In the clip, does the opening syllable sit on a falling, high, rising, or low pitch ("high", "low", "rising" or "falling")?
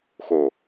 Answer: low